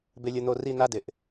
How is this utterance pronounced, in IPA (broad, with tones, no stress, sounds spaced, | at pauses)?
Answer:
b ɪ˦ lʲ ʊ˦ n̪ o˦ r i˥˨ n̪ a˥˨ d ɪ˩˧ ʔ